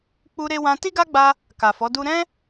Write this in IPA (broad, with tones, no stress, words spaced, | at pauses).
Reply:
k͡pu˧ɾe˧wã˧ ti˦ɡa˦ɡ͡ba˧ | ka˨fɔ˨˦du˦ ɾɛ̃˦